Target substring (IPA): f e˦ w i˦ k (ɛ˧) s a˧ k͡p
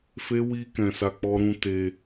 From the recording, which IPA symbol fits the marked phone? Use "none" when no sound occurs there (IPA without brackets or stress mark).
ɛ̃˧